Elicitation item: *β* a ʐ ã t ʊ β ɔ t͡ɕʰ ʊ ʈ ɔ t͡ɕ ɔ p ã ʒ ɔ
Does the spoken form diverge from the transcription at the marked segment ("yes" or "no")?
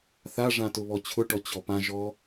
yes